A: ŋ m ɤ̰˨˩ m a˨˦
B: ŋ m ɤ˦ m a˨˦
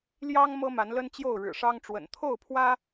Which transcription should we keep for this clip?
B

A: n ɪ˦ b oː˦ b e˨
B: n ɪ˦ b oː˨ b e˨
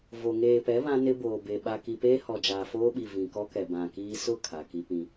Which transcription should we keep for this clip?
B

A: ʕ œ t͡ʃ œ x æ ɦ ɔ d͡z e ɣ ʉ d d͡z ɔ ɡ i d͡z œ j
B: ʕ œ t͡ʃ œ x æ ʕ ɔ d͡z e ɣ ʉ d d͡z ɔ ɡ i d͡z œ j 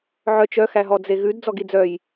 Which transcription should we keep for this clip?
A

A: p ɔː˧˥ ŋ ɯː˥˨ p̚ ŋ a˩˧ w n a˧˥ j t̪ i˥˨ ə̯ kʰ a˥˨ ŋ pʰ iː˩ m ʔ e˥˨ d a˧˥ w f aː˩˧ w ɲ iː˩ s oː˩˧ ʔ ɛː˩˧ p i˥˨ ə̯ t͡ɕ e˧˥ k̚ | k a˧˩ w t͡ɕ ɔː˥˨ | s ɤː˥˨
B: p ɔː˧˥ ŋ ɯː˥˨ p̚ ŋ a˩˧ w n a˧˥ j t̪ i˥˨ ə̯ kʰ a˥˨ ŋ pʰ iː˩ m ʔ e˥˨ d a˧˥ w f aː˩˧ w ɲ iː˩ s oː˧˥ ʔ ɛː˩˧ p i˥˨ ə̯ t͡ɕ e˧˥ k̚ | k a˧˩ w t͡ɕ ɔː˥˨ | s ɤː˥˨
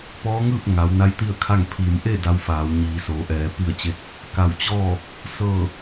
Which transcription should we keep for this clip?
A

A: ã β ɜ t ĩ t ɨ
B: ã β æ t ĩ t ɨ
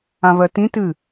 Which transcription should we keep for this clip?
A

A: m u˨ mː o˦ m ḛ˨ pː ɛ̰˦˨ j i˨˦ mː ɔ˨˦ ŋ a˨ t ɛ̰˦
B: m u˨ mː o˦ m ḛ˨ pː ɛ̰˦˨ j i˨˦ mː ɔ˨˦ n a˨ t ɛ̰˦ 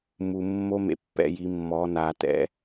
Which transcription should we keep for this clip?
B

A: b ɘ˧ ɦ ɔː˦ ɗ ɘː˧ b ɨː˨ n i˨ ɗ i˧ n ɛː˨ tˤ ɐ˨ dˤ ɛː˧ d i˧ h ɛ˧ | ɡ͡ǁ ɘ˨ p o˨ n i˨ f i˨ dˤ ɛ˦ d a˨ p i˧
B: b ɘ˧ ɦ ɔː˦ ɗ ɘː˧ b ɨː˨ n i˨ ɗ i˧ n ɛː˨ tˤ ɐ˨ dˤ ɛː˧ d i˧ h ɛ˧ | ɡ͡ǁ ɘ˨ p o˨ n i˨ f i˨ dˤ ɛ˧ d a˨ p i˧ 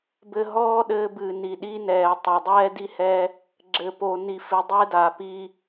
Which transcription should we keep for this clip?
B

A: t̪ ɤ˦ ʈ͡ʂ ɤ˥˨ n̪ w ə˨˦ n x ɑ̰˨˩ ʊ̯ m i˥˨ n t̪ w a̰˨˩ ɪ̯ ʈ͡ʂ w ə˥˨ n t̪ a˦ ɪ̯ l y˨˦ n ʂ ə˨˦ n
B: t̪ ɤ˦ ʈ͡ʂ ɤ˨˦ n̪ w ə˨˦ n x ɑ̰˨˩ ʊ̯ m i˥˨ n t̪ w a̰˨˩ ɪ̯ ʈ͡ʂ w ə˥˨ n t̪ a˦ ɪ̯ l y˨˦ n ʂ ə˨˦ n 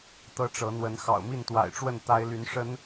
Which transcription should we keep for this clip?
B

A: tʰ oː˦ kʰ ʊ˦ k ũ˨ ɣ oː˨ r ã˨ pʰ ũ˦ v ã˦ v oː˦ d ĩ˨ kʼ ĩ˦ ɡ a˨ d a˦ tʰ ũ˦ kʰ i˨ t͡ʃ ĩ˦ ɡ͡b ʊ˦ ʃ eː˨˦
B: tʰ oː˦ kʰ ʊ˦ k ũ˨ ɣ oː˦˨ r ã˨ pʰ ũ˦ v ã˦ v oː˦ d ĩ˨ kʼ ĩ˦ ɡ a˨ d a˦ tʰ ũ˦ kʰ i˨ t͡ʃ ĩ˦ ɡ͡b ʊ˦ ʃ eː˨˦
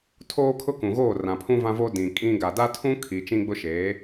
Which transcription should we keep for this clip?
B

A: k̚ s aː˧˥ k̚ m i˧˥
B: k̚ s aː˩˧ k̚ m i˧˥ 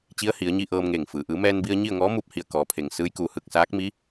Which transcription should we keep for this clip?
A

